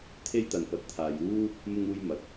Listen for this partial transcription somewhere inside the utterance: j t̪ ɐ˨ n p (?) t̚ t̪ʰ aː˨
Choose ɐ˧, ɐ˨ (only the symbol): ɐ˨